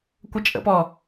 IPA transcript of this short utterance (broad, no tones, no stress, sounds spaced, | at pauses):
kʷ ə t͡ʃʼ ə̰ p ɔ